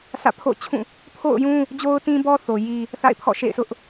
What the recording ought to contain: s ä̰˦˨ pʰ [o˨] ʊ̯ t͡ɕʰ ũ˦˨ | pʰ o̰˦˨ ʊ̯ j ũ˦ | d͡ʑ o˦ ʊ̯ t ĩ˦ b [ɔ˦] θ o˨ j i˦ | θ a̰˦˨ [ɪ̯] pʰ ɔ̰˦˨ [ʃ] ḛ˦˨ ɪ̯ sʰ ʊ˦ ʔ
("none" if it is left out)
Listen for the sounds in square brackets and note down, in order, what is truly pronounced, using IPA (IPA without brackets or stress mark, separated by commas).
o̰˦˨, ɔ˦, ɪ̯, ʃ